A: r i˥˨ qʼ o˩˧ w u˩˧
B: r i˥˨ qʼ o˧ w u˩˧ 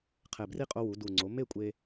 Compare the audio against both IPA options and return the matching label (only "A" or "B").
B